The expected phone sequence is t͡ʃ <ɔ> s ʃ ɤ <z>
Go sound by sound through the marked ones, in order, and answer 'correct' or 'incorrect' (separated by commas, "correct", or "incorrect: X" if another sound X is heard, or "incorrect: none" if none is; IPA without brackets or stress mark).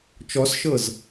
correct, correct